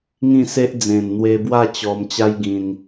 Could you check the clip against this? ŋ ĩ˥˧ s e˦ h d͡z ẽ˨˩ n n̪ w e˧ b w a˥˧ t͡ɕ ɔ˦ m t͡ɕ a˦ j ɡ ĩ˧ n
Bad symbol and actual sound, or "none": h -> ʔ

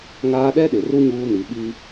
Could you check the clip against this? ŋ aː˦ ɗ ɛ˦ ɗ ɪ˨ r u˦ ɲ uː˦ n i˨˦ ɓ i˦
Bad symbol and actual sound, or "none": none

